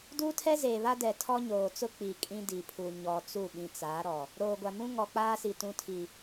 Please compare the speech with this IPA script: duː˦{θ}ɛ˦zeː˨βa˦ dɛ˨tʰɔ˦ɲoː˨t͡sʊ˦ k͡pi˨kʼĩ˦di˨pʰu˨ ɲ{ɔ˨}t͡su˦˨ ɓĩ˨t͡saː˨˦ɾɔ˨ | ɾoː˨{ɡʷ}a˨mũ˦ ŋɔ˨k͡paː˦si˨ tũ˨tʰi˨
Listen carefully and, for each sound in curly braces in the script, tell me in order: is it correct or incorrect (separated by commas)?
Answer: incorrect, correct, correct